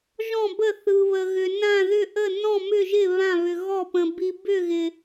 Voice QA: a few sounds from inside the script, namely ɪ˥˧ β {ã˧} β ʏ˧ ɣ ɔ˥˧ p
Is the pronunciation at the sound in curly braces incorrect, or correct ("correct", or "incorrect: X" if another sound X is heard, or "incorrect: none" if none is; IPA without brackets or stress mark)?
incorrect: ã˥˧